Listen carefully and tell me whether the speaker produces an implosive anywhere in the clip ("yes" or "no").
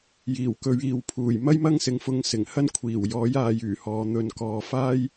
no